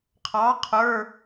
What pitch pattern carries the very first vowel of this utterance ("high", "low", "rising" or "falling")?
rising